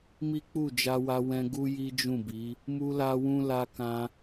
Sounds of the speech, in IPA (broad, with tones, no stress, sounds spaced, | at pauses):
m i˦ k͡p u˦˨ d͡ʒ a˧ w a˧ w ɛ̃˧ ɡ u˦ j i˦ d͡ʒ ũ˦˨ b i˨˦ | m u˦ l a˦ w ũ˦ l a˧ k ã˧